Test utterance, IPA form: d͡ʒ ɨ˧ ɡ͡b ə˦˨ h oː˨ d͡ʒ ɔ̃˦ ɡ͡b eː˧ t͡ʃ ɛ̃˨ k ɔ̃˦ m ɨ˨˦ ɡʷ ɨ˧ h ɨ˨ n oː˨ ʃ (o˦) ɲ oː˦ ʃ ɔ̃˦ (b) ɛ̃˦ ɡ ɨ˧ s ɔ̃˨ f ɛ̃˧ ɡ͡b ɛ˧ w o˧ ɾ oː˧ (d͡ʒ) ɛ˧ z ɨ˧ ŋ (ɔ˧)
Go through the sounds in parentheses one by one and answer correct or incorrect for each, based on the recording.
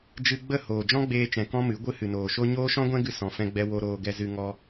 correct, incorrect, incorrect, correct

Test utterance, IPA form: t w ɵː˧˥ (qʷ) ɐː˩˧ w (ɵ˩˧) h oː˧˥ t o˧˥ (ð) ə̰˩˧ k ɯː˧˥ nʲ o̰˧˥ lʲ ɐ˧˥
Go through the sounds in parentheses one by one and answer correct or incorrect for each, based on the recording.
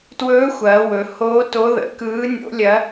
incorrect, correct, correct

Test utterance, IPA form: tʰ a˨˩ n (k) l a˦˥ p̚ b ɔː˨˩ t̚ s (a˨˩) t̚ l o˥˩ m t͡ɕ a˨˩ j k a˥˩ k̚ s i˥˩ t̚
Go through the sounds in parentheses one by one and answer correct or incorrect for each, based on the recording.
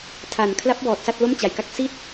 incorrect, incorrect

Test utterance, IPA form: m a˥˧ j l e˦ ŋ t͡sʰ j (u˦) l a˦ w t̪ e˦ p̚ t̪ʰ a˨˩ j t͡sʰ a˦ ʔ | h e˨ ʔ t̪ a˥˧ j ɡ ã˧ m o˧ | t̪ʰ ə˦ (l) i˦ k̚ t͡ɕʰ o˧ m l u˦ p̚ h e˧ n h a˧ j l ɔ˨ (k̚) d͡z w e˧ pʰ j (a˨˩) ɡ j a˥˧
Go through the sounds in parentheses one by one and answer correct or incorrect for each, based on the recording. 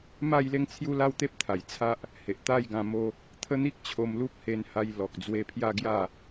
correct, incorrect, correct, incorrect

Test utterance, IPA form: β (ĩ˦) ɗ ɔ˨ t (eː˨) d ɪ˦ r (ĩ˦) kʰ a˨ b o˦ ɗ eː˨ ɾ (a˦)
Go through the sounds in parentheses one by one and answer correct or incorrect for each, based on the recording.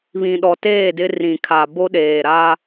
incorrect, incorrect, incorrect, correct

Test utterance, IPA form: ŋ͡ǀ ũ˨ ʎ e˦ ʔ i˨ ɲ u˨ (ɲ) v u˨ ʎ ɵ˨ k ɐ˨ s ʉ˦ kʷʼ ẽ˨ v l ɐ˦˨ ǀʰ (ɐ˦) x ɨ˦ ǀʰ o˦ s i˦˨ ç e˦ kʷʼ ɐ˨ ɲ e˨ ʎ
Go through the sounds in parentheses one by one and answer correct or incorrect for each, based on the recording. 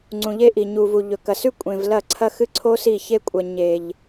incorrect, correct

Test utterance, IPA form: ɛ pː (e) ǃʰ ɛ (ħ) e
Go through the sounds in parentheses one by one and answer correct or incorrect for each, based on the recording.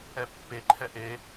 correct, incorrect

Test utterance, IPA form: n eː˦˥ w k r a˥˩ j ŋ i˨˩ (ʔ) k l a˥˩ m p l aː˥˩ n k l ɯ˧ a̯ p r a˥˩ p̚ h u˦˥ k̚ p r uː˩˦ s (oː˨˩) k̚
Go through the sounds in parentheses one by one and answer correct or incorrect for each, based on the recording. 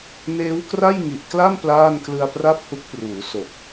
correct, incorrect

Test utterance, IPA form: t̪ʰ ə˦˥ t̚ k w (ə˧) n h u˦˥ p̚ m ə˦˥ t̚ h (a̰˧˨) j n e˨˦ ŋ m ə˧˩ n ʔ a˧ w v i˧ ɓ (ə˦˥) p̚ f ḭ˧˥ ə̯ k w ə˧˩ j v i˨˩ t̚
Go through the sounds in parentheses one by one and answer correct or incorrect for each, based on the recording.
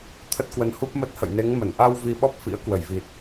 correct, incorrect, incorrect

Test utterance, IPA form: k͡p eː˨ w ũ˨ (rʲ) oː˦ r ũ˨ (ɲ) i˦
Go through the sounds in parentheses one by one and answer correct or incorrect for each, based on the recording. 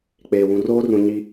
incorrect, correct

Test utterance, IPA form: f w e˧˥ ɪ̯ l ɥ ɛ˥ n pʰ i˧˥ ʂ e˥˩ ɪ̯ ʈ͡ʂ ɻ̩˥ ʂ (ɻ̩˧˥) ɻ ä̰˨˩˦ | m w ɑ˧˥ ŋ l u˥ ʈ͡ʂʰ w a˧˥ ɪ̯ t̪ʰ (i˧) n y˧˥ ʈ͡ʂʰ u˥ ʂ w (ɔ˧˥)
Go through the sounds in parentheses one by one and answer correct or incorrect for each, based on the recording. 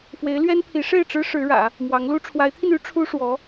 correct, correct, correct

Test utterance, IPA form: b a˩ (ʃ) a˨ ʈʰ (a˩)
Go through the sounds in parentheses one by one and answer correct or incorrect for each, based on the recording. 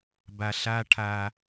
incorrect, correct

